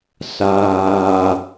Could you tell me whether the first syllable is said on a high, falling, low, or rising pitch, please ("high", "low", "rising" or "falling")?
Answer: low